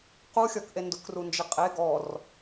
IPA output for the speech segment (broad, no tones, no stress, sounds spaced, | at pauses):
q u xʲ ɔ k ʔ e n d ʊ k r u n d͡ʒ ɪ qʼ e ɡ ɔ r